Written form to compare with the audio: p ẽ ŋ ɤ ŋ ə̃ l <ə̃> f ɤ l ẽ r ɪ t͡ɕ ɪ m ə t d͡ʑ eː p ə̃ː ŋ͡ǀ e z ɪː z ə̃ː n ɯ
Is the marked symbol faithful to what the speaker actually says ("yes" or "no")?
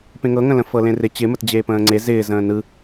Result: yes